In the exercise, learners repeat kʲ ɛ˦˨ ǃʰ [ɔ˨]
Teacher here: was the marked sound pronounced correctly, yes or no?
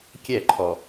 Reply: yes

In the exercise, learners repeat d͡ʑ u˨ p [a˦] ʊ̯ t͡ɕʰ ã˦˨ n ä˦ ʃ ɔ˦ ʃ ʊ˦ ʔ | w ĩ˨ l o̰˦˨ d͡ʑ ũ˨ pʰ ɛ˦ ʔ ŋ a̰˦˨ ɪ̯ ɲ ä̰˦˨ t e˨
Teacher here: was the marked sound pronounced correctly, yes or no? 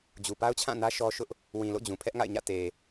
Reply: yes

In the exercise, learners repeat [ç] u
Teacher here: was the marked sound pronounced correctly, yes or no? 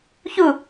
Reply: yes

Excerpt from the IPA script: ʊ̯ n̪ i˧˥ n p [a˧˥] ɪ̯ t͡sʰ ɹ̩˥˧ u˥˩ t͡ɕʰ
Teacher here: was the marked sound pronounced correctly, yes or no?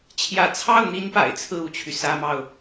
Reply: no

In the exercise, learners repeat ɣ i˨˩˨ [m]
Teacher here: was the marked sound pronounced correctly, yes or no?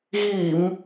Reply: yes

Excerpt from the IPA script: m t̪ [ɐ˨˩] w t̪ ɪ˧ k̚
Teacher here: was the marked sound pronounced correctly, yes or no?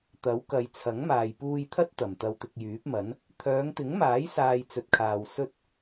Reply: no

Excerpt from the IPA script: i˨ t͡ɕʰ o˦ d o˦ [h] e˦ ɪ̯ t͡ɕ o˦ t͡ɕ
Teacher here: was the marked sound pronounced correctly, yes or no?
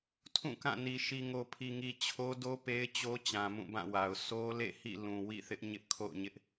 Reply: no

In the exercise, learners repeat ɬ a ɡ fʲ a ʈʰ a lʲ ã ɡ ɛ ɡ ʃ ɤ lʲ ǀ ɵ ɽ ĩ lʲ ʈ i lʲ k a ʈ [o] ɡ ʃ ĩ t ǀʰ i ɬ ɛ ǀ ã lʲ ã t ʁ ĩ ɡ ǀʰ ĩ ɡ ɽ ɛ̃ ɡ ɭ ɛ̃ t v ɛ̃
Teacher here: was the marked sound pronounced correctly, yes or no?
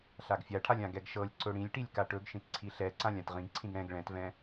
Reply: no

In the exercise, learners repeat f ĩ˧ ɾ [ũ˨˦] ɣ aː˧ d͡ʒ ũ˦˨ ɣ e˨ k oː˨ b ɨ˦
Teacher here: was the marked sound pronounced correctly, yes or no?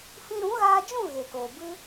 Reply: yes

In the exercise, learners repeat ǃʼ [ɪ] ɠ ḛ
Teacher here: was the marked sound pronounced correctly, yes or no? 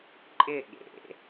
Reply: yes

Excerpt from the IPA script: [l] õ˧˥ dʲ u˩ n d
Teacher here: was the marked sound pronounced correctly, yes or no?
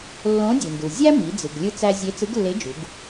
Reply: no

